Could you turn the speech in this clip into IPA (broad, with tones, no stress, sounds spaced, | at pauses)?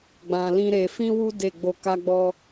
ɡ͡b ã˧ l ĩ˦ ɾ e˧ f ĩ˦ w u˦ d e˦˨ ɡ͡b o˧ k a˦ ɡ͡b ɔ˦